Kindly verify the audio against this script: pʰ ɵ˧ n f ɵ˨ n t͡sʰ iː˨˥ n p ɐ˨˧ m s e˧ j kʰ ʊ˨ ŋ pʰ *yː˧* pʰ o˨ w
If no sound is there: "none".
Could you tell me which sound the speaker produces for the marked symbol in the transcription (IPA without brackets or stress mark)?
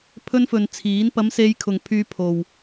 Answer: yː˧